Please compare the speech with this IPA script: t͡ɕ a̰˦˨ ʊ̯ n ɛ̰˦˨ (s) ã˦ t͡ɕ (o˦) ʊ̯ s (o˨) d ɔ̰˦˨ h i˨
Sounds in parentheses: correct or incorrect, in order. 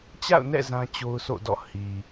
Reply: incorrect: z, correct, incorrect: o̰˦˨

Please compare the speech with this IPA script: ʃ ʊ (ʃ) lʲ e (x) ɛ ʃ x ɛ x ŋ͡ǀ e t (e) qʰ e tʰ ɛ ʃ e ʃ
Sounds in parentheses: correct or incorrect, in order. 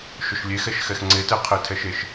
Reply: correct, correct, incorrect: ɛ

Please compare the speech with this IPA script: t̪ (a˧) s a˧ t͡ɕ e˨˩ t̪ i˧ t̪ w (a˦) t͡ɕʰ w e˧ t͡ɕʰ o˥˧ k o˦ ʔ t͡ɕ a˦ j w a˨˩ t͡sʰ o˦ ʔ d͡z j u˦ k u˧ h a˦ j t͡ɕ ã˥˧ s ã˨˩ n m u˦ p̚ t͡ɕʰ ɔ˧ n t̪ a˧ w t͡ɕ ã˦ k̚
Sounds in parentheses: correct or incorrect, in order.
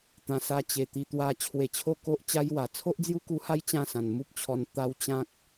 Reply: incorrect: ã˧, correct

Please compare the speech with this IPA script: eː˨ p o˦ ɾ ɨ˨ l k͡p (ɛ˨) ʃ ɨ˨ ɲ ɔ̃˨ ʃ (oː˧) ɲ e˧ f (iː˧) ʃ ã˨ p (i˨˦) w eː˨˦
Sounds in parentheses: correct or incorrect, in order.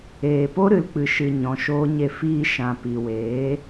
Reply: incorrect: ɨ˨, correct, correct, incorrect: i˨

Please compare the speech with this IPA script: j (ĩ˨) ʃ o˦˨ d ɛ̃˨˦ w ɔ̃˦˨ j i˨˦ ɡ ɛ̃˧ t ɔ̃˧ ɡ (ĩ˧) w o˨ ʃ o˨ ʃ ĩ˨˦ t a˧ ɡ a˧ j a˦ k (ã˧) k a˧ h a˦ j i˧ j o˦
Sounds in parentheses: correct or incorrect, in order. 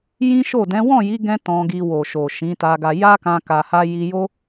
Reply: incorrect: ĩ˦, incorrect: i˧, correct

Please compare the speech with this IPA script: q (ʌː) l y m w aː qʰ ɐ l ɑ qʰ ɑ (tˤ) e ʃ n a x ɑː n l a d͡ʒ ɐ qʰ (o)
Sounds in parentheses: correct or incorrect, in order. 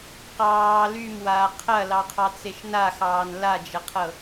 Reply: incorrect: ɑː, incorrect: t͡s, incorrect: ɤ

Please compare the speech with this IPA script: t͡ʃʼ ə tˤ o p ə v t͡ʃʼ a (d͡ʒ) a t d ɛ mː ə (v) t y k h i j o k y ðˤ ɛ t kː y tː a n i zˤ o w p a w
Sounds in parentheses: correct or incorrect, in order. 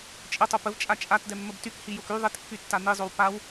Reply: incorrect: t͡ʃʼ, incorrect: b

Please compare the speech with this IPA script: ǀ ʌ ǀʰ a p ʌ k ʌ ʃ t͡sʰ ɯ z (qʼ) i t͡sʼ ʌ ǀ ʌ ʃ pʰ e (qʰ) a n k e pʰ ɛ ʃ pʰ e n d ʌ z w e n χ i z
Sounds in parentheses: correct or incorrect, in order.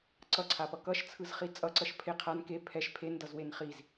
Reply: incorrect: χ, correct

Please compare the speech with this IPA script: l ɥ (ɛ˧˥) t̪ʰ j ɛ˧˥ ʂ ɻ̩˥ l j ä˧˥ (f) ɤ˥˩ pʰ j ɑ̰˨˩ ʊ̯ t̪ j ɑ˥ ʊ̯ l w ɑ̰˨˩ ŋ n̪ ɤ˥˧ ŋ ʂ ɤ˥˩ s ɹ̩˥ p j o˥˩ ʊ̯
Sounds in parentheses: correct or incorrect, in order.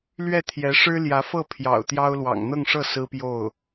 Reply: incorrect: ɛ˥˩, correct

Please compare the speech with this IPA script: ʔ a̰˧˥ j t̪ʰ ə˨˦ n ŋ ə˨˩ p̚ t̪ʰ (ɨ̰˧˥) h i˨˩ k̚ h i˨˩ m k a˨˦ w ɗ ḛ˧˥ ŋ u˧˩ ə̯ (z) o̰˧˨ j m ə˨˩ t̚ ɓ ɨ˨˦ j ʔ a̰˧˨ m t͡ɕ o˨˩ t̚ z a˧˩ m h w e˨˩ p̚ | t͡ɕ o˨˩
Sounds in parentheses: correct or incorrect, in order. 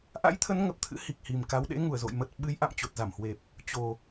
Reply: correct, correct

